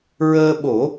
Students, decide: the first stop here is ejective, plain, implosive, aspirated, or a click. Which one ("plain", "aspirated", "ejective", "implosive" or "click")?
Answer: implosive